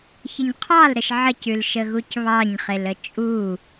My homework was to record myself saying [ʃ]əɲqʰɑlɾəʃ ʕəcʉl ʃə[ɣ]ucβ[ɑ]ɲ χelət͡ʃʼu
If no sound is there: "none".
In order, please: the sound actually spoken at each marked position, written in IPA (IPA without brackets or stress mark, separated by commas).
ç, ɣ, ɑ